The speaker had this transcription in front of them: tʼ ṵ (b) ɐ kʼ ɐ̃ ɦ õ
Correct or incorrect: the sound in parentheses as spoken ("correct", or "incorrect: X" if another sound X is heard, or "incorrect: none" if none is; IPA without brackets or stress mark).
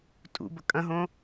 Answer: correct